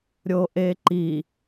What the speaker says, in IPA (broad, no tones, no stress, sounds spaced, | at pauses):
ɾʲ o ʔ e ǃ i